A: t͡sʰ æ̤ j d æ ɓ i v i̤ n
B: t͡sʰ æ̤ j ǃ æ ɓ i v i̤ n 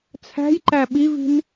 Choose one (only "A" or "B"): B